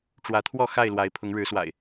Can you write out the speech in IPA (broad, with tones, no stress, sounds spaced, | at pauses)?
ʈ͡ʂ w ä˨˦ t̪ʰ w ɔ˥˨ x a˥˨ ɪ̯ l w a˨˦ ɪ̯ pʰ ʊ˨˦ ŋ ɻ ɻ̩˨˦ s w a̰˨˩ ɪ̯